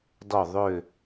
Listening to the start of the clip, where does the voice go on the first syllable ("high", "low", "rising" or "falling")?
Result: falling